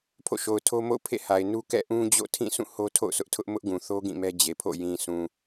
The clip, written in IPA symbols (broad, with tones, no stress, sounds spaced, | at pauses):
pʰ o̰˦˨ ʃ o˨ ʊ̯ tʰ o˦ m o̰˦˨ ʊ̯ pʰ ḛ˦˨ h a˨ ɪ̯ n u˦ k ɛ̰˦˨ ʔ ũ˦ d͡ʑ o̰˦˨ tʰ ĩ˦˨ s ũ˦˨ h o˦ tʰ o̰˦˨ ʊ̯ s ʊ˦ ʔ tʰ ʊ˦ ʔ m ʊ˦ ʔ ɡ ũ˨ θ o˦ ɡ ĩ˦˨ m ɛ˦ d͡ʑ e˨ pʰ o̰˦˨ j ĩ˨ sʰ ũ˨